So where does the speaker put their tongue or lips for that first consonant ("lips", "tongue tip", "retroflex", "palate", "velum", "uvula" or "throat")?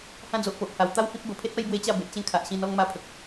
throat